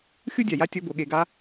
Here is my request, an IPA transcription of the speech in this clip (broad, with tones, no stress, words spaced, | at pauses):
xʲu˥dʲa˩ja˥ tʲɔ˧˥bo˩˧ ɠe˧ɡa˥